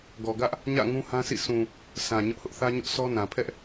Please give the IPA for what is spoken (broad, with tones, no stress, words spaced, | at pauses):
ɡɔ˨ɡä˦ʔ | ɲä̰˦˨ ŋũ˦hã˦sḭ˦˨ sʰũ˨ | sʰã˨ ɲʊ˦ʔhʊ˦ʔ θä˦ɲʊ˦ʔsʰɔ˦nã˨ pʰɛ˦ʔ